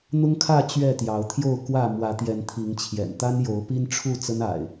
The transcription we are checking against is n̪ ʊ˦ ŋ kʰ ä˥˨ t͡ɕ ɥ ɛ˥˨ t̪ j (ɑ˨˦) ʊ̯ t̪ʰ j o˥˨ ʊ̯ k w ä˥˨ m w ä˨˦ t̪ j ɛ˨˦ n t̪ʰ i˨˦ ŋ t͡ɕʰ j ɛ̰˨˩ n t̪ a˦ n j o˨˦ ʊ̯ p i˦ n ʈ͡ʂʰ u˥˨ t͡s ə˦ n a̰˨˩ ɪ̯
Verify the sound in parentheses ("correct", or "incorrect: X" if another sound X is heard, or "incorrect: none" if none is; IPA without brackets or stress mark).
correct